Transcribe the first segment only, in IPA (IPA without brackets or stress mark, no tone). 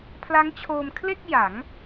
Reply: pʰ